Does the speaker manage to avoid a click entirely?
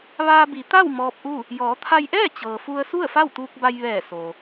yes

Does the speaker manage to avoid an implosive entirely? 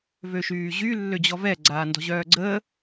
yes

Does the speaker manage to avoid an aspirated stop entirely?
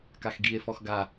yes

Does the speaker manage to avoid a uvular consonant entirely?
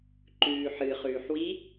no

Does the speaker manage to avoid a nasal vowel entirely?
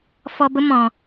no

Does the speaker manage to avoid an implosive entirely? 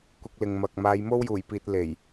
yes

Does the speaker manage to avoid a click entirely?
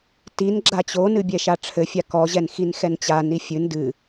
no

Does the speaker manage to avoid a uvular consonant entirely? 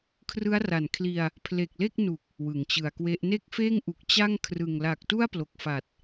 yes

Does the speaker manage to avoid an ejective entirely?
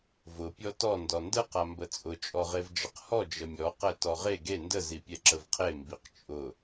no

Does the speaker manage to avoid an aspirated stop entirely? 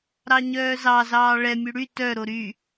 yes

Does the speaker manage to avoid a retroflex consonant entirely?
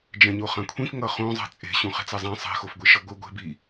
yes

